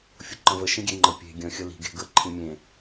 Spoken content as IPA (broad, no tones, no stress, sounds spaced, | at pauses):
fʲ ʊ ǃ ə̃ v ə ʃ ĩ ɡʲ e ŋ͡ǃ ə pʲ e̤ ɡʲ ə̃ xʲ ə l i̤ ɡ e̤ ɡ ə ǃʰ ĩ mʲ ẽ